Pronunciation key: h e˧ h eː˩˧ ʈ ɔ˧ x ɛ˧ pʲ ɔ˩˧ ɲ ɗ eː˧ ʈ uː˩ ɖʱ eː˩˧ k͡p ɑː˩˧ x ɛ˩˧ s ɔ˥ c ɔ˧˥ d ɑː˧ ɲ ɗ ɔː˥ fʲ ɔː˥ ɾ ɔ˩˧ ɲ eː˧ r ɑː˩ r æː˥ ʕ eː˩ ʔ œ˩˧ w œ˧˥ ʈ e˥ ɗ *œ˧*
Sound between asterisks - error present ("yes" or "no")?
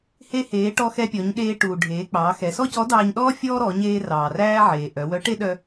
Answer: no